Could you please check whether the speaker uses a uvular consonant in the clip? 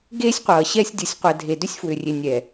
yes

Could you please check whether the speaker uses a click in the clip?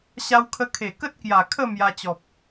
no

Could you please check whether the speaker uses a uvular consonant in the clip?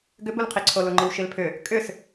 yes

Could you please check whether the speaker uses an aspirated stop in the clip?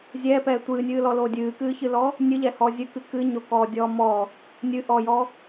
no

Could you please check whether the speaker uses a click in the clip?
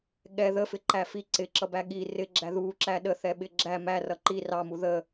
yes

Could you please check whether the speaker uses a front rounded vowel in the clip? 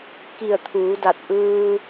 no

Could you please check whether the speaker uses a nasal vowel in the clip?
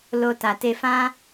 yes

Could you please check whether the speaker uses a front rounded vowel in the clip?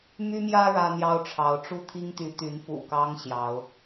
yes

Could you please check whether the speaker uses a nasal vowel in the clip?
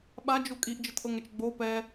no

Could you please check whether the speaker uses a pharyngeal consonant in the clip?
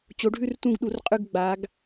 no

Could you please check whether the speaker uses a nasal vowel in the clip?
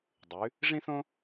yes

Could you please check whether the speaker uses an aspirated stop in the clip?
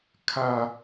yes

